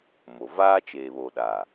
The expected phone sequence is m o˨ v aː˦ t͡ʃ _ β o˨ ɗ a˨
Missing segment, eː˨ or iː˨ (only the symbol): eː˨